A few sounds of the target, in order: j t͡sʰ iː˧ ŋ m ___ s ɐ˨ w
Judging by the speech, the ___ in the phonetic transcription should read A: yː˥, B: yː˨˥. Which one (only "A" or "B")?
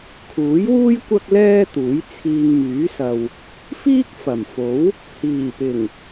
B